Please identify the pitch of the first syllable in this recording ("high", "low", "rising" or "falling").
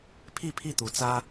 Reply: falling